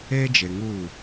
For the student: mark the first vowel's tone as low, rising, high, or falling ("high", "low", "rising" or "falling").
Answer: high